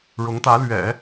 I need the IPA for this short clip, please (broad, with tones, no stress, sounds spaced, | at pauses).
ɻ ʊ˧˥ ŋ t̪ ä˧˥ l ɥ ɛ̰˨˩˦